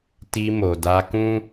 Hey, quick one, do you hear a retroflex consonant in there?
no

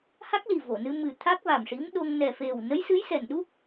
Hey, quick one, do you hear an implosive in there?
yes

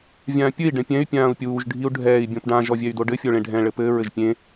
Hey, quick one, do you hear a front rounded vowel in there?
yes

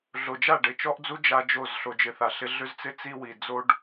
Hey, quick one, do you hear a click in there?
no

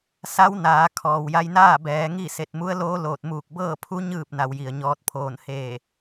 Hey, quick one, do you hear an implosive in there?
no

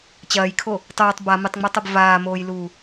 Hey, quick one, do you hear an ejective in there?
no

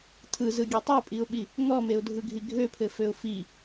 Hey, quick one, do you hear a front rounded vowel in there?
yes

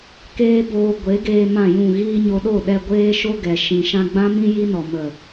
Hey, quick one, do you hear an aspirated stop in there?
no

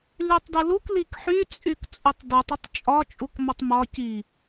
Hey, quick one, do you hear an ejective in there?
yes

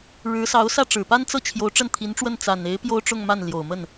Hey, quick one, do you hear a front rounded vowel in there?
no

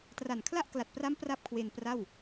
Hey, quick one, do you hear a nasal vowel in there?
no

